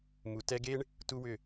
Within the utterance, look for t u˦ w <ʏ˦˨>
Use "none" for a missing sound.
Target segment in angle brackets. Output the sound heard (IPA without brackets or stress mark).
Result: ʏ˦˨